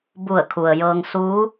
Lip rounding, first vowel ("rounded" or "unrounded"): rounded